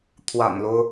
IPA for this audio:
t̪ʰ w a̰˨˩ n l o˦ ʊ̯

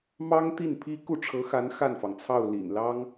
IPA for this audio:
m ɑ˥ ŋ t̪ i˥˩ n pʰ i˥ k u˥˩ ʈ͡ʂʰ ɤ˧˥ x a˧˥ n x a˥˩ n f ɑ˩ ŋ t͡sʰ ɑ˥˩ ʊ̯ l ḭ˨˩ n l ɑ˥ ŋ

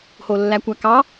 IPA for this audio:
h o lː æ kʷ æ k ɑ

